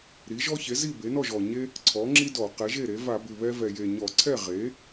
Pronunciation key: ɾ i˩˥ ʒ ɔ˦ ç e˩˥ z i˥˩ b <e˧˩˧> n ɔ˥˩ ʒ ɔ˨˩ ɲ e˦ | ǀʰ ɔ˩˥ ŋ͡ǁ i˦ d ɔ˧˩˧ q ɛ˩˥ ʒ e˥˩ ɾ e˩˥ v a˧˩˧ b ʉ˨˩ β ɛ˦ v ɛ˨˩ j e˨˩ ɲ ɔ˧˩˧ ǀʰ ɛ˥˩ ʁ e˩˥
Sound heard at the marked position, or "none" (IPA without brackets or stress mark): e˩˥